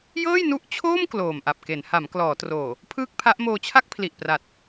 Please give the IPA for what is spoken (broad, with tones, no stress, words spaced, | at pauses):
jɤː˥˩jnu˦˥ʔt͡ɕʰoː˥˩m kloː˨˩mʔa˨˩p̚ke˩˦nha˩˦m klɔː˩˦troː˨˩ | pʰɯː˥˩k̚pʰa˦˥ʔ moː˧t͡ɕʰa˥˩k̚pʰli˨˩ʔpra˨˩t̚